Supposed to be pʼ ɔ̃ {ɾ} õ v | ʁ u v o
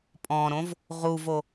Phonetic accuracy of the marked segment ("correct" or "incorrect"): correct